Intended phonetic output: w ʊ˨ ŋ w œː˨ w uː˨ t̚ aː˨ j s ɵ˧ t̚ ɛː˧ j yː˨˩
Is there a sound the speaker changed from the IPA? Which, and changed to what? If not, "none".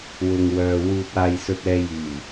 none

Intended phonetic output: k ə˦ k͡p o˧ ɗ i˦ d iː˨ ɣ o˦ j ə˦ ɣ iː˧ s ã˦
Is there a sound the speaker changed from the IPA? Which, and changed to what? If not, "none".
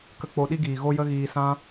d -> ɡ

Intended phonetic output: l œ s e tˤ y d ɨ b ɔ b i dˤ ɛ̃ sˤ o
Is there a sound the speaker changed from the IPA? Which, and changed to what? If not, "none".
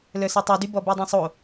ɨ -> y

